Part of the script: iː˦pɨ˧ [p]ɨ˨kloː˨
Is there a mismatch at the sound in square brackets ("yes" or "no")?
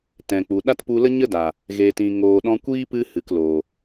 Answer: yes